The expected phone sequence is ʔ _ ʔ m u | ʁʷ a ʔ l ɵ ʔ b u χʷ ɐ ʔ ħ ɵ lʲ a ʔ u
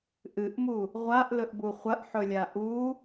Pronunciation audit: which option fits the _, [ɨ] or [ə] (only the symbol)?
ɨ